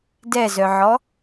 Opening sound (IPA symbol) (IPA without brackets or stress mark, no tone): d